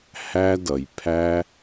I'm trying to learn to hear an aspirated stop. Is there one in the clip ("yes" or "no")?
yes